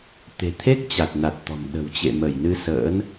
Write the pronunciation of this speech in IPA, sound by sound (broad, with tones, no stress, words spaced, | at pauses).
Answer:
t̪e̤˨˩t̪ʰe˦˥k̚ t͡ɕa˨˩t̚na˨˩t̚t̪ɔ̤˨˩m ɗə̤˨˩wt͡ɕḛ˧˨mə˧˩jnɨ˧ sə̰ː˧˥n